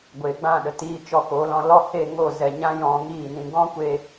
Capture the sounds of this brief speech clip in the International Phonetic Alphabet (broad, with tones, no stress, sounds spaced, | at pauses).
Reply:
ɡʷ e˨ ɡ͡b ã˦˨ ɗ ə˨ t iː˧ t͡ʃ ɔ˧ k o˨˦ l ɔ̃˧ l ɔ˦˨ h e˦˨ ŋ o˦˨ z ɛ˨ ɲ ã˦ j ɔ̃˧ ŋ iː˦˨ n ĩ˧ ɡ ɔ̃˦ kʷ e˧